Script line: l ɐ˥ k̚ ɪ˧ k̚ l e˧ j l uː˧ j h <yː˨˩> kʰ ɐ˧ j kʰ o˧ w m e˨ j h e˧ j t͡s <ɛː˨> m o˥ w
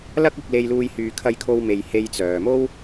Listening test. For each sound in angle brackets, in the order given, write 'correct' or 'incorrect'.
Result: incorrect: yː˨, incorrect: œː˨

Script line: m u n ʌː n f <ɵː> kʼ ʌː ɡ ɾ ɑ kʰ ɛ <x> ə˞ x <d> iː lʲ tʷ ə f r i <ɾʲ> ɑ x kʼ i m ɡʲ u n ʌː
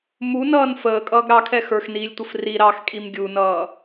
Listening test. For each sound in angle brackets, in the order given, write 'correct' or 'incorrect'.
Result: incorrect: əː, correct, incorrect: n, incorrect: ɾ

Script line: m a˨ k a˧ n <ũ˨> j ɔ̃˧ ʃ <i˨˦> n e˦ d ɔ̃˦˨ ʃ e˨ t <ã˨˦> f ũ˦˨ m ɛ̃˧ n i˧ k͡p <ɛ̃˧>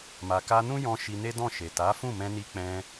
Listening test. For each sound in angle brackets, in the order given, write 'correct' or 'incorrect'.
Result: incorrect: ũ˦, incorrect: i˧, incorrect: a˨˦, correct

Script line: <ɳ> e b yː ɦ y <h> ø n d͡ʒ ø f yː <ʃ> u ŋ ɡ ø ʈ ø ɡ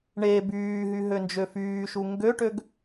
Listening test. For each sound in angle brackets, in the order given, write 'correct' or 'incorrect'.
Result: correct, incorrect: ɦ, correct

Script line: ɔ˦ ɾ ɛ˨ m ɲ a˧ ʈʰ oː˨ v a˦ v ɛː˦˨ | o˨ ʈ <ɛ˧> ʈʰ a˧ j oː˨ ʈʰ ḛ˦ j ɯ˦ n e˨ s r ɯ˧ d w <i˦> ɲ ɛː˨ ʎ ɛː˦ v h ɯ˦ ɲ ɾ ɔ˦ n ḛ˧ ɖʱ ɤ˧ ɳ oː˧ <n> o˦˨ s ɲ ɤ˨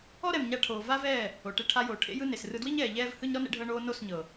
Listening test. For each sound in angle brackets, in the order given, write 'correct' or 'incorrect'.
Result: incorrect: e˧, correct, correct

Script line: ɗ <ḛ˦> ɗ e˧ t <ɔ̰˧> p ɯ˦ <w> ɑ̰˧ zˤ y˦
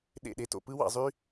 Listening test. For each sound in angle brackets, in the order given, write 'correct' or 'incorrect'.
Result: incorrect: ḛ˦˨, incorrect: o̰˧, correct

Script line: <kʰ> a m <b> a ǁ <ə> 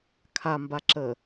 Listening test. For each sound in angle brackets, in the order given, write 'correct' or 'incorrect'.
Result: correct, correct, correct

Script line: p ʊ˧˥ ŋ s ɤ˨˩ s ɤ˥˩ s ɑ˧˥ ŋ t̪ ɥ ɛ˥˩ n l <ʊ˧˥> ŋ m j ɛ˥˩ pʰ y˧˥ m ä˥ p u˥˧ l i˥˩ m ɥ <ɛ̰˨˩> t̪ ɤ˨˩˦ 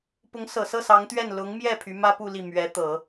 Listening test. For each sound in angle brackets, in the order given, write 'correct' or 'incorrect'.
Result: correct, incorrect: ɛ˧˥

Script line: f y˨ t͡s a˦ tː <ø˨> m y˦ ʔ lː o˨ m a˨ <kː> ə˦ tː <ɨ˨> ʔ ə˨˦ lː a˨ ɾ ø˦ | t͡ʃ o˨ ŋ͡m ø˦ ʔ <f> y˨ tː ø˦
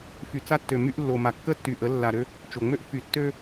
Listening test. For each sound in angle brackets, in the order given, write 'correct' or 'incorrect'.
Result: correct, correct, incorrect: y˨, correct

